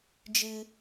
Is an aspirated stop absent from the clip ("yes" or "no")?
yes